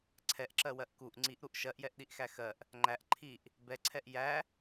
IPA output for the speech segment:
ǀʰɛʔǁɜwɜʔ kuʔ ŋ͡ǀiʔɾuʔ ʃɜʔjɛʔɗiʔxæ xɜʔ | ŋ͡ǃæʔ ǃʰiʔ | bɛǀʰɛʔ jæ

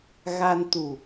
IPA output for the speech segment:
ɣa˧nt̪u˨˩

